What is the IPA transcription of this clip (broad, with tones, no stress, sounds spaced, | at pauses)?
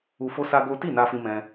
u˦ f o˦ s a˦ ɡ o˦ t i˦˨ n a˧ f ĩ˧ m ɛ̃˧